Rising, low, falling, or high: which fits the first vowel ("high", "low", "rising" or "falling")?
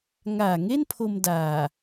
low